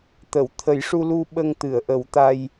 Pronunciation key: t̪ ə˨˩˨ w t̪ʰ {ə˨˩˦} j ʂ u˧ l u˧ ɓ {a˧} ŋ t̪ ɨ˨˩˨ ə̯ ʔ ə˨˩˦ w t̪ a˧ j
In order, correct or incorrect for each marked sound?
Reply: correct, incorrect

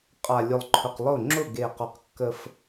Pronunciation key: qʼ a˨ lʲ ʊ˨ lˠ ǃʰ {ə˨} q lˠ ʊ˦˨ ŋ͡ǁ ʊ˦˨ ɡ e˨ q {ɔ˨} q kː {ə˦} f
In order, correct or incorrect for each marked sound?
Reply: incorrect, correct, correct

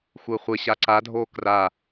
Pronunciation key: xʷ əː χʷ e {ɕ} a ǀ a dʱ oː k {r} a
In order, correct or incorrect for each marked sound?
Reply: correct, correct

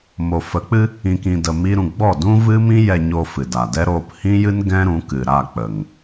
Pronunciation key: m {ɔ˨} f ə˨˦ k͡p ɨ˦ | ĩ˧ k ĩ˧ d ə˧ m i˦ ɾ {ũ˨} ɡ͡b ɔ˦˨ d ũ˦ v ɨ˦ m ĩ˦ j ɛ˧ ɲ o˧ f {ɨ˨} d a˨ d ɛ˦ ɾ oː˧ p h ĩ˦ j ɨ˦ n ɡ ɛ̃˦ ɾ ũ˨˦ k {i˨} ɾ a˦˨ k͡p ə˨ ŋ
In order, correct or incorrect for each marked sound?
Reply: incorrect, incorrect, correct, incorrect

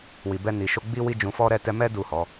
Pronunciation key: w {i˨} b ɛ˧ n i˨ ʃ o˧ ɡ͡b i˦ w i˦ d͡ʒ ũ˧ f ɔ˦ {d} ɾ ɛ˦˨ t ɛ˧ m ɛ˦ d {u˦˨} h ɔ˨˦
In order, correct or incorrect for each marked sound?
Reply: correct, incorrect, correct

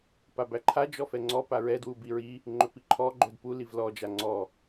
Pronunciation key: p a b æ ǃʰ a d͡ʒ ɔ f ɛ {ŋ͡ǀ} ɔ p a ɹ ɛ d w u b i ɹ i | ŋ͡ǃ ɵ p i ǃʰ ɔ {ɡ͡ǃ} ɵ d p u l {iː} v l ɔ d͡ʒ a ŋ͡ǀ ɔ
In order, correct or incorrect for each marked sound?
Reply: correct, correct, incorrect

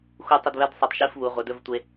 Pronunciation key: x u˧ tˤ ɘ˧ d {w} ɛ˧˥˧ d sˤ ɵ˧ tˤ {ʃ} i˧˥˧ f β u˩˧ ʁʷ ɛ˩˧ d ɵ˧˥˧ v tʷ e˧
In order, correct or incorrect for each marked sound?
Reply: incorrect, correct

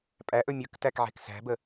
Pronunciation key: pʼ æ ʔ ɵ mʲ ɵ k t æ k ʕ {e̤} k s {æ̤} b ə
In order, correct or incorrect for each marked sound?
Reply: correct, correct

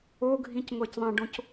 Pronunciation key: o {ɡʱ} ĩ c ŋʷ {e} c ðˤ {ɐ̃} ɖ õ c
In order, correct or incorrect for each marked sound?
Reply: correct, incorrect, correct

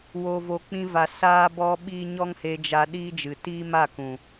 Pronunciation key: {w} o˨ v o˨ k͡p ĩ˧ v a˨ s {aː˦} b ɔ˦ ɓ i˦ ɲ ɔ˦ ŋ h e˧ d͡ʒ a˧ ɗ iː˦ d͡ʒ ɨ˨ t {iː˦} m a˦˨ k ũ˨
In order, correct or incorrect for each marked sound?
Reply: correct, correct, correct

